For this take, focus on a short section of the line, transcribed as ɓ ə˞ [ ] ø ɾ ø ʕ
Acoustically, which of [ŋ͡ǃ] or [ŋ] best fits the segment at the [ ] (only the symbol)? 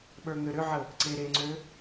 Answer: ŋ